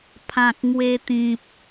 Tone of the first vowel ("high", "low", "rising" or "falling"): low